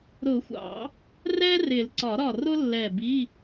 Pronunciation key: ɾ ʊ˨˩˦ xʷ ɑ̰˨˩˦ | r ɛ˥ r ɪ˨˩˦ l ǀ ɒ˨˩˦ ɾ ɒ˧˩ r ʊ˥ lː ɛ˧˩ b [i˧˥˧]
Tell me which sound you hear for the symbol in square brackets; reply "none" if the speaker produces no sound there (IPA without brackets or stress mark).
i˧˥˧